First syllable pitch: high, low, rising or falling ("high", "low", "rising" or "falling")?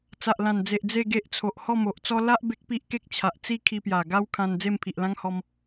low